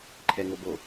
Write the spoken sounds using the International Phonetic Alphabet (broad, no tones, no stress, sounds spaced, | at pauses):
ǃʰ ɛ ŋ o b o